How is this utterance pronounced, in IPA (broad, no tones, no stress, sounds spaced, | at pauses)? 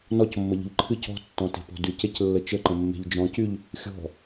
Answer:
n ɔ c mː ə ʎ ə̤ ʎ ǃʰ ɨ c ɔ̤ tː ɔ̃ t e̤ p ɔ̤ d y c e c lː ə t͡ʃ ə ǃ ə̃ mː e̤ ʎ d͡ʒ ɔ̃ c y ʎ | xʲ ɔ̤